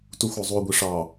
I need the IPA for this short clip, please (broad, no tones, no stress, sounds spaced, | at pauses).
t u xʷ ɔ zˤ u ɡʷ i ʂ ɑ